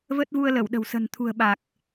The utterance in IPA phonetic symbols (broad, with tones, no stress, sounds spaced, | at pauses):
v ə˦˥ t̚ v u˧ ə̯ l ə˧˩ w ɗ ə̤˨˩ w s ə̤˨˩ n t̪ʰ ṳ˨˩ ə̯ ɓ a˨˩ k̚